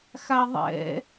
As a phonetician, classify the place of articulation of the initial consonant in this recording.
velar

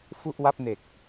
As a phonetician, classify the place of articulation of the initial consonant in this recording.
labial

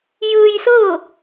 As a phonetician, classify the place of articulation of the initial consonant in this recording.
palatal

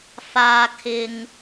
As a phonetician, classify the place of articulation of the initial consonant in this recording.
labial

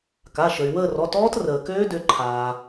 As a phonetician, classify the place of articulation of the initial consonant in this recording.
velar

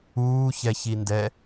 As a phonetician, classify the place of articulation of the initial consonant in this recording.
palatal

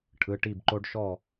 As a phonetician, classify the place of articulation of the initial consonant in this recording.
retroflex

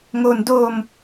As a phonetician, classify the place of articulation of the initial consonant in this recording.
velar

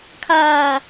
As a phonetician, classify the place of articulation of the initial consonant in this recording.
velar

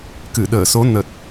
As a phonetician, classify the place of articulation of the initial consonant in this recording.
velar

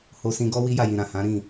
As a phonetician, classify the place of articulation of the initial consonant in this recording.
glottal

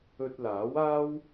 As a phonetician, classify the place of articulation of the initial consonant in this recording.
alveolar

